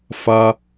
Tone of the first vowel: high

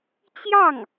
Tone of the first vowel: falling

